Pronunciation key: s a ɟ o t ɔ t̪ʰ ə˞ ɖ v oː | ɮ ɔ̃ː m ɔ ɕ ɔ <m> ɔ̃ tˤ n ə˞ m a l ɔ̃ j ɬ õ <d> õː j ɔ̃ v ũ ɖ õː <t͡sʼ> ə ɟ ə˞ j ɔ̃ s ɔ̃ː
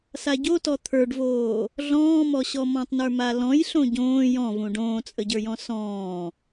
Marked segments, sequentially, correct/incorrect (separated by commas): correct, incorrect, correct